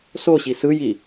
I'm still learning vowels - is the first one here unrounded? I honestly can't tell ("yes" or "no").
no